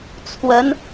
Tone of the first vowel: rising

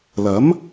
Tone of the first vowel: rising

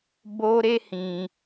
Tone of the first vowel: high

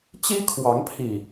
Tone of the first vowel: high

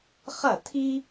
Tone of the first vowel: falling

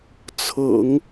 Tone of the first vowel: low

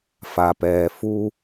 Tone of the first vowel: low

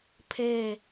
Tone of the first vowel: falling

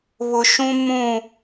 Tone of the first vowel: low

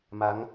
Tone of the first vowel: rising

